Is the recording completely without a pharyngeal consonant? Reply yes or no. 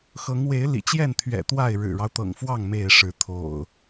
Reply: yes